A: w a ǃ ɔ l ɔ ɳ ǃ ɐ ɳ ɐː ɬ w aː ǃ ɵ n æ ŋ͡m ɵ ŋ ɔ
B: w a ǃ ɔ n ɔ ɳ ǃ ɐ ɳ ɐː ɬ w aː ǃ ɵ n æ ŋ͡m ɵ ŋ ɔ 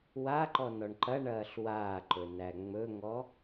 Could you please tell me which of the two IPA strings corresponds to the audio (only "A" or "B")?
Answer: B